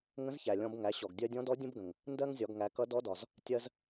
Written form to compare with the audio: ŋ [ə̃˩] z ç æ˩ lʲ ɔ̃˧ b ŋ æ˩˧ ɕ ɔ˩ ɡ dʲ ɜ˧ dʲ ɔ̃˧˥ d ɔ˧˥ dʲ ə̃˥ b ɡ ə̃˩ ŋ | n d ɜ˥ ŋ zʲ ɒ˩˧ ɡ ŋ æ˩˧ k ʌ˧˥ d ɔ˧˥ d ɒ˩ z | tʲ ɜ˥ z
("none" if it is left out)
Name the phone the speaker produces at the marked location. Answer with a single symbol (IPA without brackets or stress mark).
ə̃˧˥